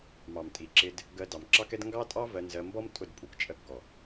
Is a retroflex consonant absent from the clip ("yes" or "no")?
yes